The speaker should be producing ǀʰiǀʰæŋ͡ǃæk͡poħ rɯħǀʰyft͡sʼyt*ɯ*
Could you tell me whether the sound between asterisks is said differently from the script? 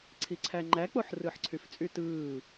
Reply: yes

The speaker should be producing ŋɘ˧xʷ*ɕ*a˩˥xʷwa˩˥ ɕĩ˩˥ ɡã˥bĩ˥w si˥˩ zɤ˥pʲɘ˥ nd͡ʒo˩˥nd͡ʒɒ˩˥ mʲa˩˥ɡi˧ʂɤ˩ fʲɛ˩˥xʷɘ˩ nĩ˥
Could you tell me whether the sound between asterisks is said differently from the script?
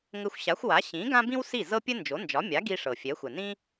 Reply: no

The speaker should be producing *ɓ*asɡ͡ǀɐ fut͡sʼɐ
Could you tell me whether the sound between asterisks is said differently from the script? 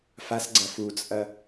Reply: yes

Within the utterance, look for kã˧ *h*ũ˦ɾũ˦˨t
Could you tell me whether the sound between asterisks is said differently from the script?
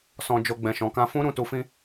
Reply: yes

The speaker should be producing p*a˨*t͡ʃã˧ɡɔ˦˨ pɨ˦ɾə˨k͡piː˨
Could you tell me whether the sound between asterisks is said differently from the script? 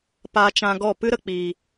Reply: yes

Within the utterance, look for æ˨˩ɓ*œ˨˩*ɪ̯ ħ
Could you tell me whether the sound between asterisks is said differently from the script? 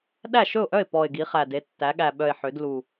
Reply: no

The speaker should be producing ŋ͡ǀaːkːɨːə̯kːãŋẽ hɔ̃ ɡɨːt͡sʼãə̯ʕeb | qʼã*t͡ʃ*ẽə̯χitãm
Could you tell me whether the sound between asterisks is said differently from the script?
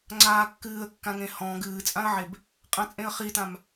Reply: yes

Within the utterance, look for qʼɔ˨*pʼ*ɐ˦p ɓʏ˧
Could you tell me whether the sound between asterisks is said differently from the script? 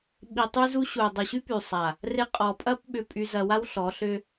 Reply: no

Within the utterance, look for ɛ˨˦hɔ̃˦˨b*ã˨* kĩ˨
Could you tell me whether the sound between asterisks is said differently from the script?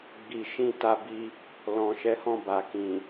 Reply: yes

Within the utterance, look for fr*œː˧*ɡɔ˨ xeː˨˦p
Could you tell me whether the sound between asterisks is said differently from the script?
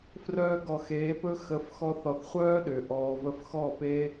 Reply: no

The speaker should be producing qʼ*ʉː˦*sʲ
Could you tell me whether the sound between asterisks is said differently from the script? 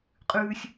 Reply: no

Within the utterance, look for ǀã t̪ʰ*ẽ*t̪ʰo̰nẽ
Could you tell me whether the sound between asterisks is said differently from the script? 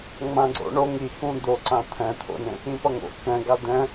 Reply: yes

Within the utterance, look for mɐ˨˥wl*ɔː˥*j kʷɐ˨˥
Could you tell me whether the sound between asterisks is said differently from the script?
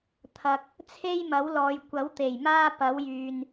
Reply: yes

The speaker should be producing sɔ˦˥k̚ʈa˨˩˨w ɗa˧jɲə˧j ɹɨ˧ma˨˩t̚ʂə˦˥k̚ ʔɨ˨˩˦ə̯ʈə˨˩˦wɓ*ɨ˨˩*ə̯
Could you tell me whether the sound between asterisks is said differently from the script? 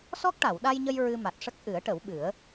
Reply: yes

